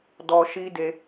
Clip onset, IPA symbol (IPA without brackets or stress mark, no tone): d